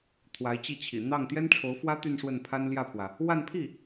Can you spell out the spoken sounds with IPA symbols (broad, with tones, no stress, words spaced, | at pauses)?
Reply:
t̪ʰwa˧˥ɪ̯t͡ɕi˥˩t͡ɕʰḭ˨˩ n̪ɑ˥˩ŋ t̪jɛ˥nʈ͡ʂʰo˧˥ʊ̯fwä˥ t̪y˥˧nʂwə˥˩npʰa˥n ljä˥˩pʰwä˩ | wa˥˧npʰi˥˩